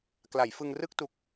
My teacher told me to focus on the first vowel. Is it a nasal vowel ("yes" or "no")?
no